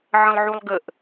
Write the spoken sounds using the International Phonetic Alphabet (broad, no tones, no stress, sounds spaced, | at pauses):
ʕ ə̃ lˠ ʕ u lˠ ɡ ə ʔ